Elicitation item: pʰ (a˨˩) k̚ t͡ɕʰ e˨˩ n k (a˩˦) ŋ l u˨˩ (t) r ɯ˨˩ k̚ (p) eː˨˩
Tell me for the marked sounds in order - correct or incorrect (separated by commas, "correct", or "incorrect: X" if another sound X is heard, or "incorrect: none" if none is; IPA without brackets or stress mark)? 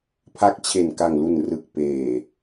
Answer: incorrect: a˦˥, incorrect: a˨˩, incorrect: n, correct